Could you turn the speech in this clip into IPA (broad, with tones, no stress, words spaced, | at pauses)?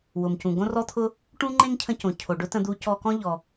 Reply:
wʊ˩mcũ˩ ɡõ˥rɔ˥t̪ʰʊ˥ | ʈũ˥ŋ͡ǃẽ˥ŋcʰə̃˧cõ˩ cʰo˩ɖʊ˥tə̃˧d̪u˧ cɔ˧kɔ̃˥ ʎɔ˩